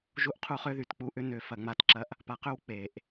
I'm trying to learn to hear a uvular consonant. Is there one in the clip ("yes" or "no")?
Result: yes